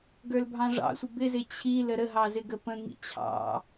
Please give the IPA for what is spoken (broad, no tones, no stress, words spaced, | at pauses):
ɡə˞lbʱɑ̃ʐɑ̰sʷɪ bɪzɪ t͡ɕʰi ləɾəɦɑ zɪɡəpə̃ŋḭ t͡ɕʰɑ̰